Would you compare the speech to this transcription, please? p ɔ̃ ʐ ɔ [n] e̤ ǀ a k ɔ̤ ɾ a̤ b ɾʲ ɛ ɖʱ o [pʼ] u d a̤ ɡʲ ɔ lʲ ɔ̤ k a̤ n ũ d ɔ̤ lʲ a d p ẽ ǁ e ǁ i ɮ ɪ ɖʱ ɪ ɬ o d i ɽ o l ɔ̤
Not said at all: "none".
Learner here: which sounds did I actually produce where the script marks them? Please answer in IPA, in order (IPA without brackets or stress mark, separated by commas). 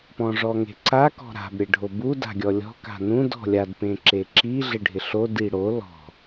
ŋ, b